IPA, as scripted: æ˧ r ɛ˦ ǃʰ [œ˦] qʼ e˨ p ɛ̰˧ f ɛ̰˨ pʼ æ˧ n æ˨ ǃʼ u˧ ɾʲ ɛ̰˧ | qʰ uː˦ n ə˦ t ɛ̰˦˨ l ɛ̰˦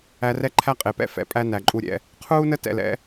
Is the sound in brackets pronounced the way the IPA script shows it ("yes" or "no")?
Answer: no